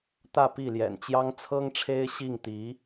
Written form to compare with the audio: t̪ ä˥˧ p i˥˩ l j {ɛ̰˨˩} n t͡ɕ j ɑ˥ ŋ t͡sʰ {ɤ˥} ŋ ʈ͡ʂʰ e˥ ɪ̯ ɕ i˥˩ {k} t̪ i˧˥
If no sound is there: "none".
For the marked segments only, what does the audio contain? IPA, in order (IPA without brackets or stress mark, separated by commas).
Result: ɛ̰˨˩, ɤ˥, ŋ